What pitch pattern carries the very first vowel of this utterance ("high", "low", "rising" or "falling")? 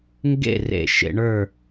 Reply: falling